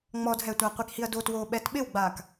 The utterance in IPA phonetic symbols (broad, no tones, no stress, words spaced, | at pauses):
ŋ͡mɔdɦɛtʷa qʷikhiɐ̯dotwoː ɓɛtɓɪwɡ͡baːk